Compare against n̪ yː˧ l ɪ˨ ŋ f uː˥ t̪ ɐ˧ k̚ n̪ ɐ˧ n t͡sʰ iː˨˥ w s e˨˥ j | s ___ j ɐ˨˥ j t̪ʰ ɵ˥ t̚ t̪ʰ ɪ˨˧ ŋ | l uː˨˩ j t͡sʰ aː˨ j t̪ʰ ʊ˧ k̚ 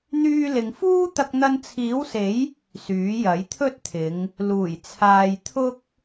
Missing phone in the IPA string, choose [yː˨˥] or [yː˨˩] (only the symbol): yː˨˥